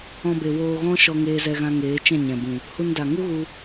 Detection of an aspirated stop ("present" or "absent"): absent